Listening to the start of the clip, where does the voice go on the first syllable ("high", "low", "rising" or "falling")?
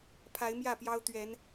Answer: rising